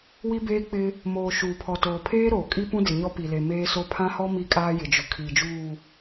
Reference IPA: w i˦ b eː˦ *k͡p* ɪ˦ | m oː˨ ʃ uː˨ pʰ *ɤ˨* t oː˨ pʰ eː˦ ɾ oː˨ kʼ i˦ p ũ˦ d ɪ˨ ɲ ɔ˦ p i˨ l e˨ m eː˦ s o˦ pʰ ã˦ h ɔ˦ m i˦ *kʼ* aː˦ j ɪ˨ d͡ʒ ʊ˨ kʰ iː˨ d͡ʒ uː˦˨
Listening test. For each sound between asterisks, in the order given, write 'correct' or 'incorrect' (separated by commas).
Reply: correct, incorrect, correct